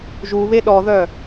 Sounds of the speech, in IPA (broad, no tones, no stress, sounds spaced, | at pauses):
ʒ u β e ɗ ɔ ð œ